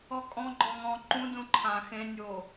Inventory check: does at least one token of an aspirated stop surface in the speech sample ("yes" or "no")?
yes